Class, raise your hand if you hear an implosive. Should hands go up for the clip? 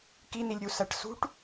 no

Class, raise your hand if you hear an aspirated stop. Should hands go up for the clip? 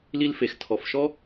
yes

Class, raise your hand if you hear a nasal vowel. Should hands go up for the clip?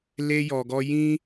yes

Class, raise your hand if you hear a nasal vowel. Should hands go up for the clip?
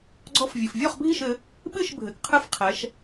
no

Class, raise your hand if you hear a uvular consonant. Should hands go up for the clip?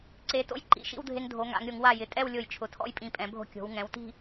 no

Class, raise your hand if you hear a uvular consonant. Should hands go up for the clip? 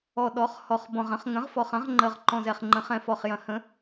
yes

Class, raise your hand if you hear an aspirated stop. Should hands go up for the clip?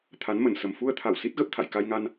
yes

